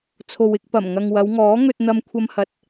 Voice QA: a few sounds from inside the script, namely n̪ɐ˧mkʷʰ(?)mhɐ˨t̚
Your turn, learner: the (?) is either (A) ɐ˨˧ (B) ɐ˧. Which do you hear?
B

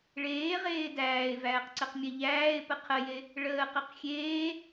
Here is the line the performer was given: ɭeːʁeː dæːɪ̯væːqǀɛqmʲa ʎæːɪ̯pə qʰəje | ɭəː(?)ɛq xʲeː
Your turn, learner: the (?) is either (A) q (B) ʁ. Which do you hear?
A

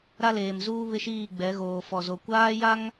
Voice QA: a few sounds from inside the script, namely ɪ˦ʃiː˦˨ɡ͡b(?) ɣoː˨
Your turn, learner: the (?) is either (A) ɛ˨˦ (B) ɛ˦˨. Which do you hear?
A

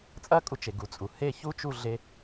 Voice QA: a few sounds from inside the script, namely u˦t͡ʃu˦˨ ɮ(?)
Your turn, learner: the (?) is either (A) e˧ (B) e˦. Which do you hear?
B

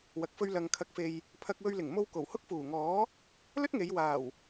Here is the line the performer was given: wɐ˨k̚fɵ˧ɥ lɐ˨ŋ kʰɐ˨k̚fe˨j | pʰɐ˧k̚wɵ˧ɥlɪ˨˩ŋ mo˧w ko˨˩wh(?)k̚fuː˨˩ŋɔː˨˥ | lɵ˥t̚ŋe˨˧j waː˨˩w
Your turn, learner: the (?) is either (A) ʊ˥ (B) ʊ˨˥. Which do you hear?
A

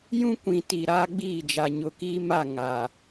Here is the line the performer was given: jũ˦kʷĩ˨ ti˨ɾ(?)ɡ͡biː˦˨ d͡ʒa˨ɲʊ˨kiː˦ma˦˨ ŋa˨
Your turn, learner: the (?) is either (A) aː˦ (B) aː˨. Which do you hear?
A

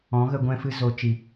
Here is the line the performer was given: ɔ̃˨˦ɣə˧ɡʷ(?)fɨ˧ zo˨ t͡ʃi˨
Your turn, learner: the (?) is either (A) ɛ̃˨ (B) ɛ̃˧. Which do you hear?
B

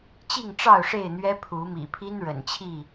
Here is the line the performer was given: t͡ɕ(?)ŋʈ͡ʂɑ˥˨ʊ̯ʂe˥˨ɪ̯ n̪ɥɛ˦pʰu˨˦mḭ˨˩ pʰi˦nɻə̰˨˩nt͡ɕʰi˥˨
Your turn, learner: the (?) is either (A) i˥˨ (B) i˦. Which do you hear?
A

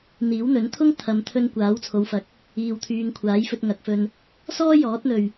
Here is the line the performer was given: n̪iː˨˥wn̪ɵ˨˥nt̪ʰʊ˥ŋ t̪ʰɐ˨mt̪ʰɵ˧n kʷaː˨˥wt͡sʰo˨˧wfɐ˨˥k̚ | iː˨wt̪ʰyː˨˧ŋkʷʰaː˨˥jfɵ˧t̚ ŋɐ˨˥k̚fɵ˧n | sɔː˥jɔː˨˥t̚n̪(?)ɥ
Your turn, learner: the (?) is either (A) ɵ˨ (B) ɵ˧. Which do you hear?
A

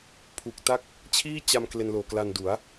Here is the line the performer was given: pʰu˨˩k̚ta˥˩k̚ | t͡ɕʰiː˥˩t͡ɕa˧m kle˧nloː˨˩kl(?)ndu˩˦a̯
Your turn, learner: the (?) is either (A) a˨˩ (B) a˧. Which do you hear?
B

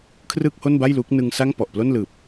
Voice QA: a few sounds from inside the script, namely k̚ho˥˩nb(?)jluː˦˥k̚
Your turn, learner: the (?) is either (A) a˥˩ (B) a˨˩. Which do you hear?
A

